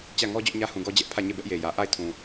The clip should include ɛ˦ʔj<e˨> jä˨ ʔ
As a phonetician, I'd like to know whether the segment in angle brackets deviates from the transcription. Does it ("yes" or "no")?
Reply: no